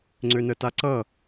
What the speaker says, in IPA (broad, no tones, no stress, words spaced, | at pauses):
ŋ͡ǀønətaǀʌ